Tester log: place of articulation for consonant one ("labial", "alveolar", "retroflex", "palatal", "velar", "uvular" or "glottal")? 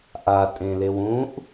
glottal